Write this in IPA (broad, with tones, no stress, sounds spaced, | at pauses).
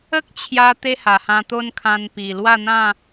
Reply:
ə˦ k̚ t͡ɕʰ j a˧ t̪ e˦ h a˨˩ h ã˧ t̪ o˦ n kʰ ã˧ n p i˨˩ l w a˥˧ n̪ ã˥˧